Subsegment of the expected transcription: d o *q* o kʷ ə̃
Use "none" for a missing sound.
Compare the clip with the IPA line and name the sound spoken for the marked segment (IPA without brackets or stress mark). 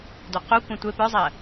q